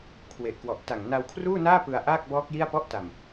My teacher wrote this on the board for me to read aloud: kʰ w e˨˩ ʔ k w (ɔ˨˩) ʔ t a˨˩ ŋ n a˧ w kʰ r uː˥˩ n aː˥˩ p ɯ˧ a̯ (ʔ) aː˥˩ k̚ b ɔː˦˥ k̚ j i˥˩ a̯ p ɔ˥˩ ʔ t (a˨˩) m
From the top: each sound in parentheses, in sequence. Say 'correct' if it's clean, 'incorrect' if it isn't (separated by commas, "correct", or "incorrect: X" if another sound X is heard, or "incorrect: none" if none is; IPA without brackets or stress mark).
correct, correct, correct